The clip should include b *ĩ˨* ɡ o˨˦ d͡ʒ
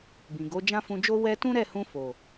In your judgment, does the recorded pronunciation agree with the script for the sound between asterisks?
yes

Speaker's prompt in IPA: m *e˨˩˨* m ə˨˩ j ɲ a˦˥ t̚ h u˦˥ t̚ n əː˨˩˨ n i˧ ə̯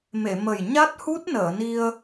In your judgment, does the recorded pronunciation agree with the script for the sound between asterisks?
yes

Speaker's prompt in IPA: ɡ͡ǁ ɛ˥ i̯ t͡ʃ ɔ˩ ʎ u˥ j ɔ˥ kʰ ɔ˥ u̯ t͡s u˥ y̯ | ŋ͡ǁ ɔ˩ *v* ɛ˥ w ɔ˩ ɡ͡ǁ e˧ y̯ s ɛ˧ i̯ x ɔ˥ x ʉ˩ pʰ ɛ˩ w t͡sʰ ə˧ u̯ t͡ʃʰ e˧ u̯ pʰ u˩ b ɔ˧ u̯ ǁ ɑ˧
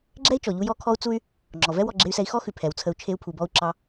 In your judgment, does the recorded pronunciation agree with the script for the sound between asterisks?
yes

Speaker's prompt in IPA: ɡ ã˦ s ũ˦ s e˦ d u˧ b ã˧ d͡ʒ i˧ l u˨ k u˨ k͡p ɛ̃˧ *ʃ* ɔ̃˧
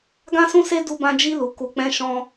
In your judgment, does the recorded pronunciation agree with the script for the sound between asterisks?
yes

